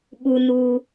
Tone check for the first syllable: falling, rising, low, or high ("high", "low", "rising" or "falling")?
high